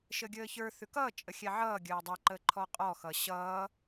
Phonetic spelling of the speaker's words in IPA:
ʃəɡʲəːçə˞ θʉkʌː t͡ʃʼəxʲɛʕʌː ɡʲəːdˤʌ ǃəǃʰɔqʼɔ xʌɕʌː

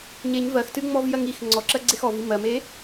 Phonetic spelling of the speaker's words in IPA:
ɲeɲ vɜxtɨŋ͡mɔvjɜŋ ix ŋ͡ǀɔǁɜɡ͡ǀex ɔvi mɜme

